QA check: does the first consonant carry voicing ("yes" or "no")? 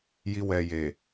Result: yes